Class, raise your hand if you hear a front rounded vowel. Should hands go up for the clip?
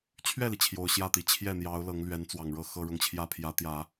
no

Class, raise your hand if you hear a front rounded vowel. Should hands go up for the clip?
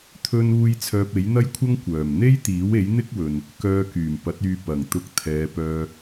yes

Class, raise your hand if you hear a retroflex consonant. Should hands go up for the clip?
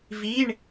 yes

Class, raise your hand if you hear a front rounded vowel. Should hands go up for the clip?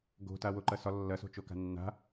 no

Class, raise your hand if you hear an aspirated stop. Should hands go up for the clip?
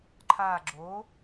yes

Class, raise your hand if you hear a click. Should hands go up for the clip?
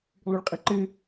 yes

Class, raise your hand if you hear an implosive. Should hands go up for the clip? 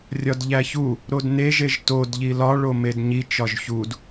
no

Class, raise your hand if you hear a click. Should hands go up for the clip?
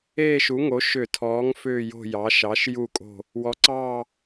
yes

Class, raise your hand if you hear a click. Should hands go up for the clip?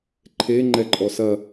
yes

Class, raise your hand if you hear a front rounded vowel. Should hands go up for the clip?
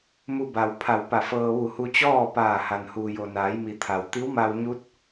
no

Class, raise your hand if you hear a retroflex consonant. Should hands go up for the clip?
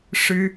yes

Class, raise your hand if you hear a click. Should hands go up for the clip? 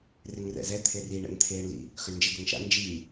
no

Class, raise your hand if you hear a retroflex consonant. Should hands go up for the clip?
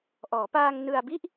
no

